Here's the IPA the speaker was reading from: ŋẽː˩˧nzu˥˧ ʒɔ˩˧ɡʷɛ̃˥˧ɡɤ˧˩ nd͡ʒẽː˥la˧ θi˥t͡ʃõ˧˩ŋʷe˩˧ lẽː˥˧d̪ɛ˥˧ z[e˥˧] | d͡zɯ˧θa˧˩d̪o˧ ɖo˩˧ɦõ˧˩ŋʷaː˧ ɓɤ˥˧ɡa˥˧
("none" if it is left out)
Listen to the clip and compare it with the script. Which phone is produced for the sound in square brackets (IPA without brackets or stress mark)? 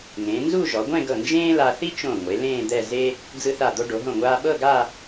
e˥